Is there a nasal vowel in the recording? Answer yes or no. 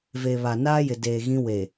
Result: yes